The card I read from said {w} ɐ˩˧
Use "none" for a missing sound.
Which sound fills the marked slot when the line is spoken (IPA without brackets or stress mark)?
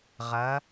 ʁ